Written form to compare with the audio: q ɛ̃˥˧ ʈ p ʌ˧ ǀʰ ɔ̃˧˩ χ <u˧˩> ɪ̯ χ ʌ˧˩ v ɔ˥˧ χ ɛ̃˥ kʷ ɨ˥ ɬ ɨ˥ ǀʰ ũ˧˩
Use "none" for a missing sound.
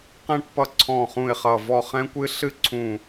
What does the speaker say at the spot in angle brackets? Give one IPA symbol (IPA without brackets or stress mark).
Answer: ũ˧˩